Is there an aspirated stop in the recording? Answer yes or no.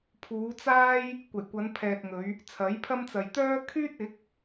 yes